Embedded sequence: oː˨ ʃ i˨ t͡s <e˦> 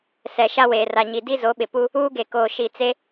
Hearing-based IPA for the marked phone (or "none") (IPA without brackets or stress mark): e˦